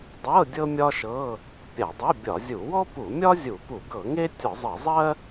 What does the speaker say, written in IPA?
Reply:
dˤ ɤ˧˥˧ dʲ ɤ˥ mʲ ɒ˥ ʃ ɤ˧˥˧ | pʲ a˧˩˧ dˤ ɜ˧˥˧ bʲ ɒ˧˩˧ zʲ u˧˩˧ w ɔ˥ p u˧˩˧ mʲ ɒ˥ zʲ u˧˩˧ p u˧˩˧ ɡ ɤ˧˩˧ ŋ e˥ tʲ ɔ˧˩˧ zˤ ɤ˧˩˧ zˤ ɜ˥

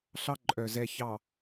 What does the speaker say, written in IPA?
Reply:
ɬ ɑ˦ ǃʼ œ˨ z ɛ˨ ç ɑ˨

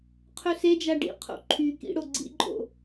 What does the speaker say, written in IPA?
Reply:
qʰ ɵ s e d͡ʒ a ɖ ḭ qʰ o̰ ǃʰ y k ḭ ɽ o ɡ͡ǀ ḭ ǃʼ o̰

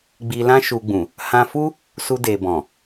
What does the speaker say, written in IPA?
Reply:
ɡ͡b i˧ l ã˦ ʃ u˧ ɡ͡b ũ˨ | h ã˧ f u˦ | s u˧ d e˨ b ɔ̃˨

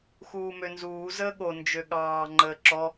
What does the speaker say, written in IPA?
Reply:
x uː m ø n z uː z əː ɠ o n d͡ʒ ø ɠ ɑː ŋ͡ǃ əː ǁ ɔ

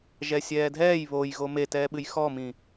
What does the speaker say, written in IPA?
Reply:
ʒ ɛ sʲ ɛː dʱ ɛː j β o j ɣ o m e t ɛː ɓ ɨ j x ɔ m ĩ

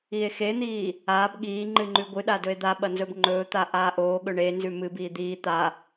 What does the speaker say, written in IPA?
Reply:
i e̯ x e n̪ iː | aː b ɠ iː ŋ͡ǃ ɨ ŋ͡ǃ ʉ ɡʷ ɨ ɗ a d ɵ e̯ d̪ a ɓ ɐ n z ɵ b ŋ͡ǃ ɵː t̪ a ʔ aː ʔ oː ɠ ɵ ɳ e n z ʉ m ɨ b iː d̪ iː t̪ a

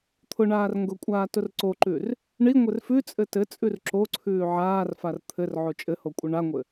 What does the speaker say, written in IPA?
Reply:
t̪ʰ ʊ ɳ aː r ŋ ɡ ʊ kʷʼ aː t ʊ r ǀ o ǃ ʉ r | ɳ i ŋʷ ɘ r f ʉ t͡sʼ ɘ t ɘ t͡sʼ ʉ r ǁ o ǀʰ ʉː ʕ aː r f a r t̪ʰ ɘ r ʕ o t͡ʃʼ ɘ h o kʷʼ ɘ ɳ a ŋʷ ɘ

